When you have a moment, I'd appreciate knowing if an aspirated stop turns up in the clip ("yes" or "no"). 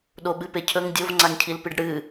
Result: yes